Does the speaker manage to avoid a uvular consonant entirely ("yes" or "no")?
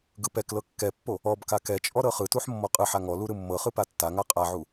no